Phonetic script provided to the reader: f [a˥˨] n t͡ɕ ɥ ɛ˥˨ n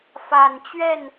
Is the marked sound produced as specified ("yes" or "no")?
no